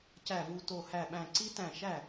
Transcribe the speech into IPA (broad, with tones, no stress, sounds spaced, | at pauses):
c æ˧˩ v u˧˩ t o˧˩ h æ˧˩ ɓ æ̃˧˩ ǀ i˦˥ t æ̃˧˩ ʃ æ˥˩